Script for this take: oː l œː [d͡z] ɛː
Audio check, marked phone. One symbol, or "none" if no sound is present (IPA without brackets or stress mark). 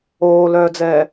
d͡z